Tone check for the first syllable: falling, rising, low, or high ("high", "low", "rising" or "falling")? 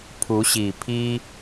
rising